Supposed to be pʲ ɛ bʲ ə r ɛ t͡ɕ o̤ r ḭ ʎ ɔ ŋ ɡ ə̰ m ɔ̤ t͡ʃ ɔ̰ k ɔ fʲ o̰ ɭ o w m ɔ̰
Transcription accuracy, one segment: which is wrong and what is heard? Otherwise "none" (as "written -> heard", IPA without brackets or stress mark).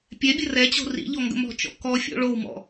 none